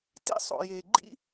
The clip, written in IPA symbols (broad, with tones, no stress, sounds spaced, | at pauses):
t ḭ˥ sˤ o̰˧ j e˧ ɡ͡ǃ ḭ˥